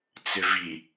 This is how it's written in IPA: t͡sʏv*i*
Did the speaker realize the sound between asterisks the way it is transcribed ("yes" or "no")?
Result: yes